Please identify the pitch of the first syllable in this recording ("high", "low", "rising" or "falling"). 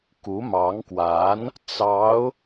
rising